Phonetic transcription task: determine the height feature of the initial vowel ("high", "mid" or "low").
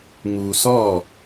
high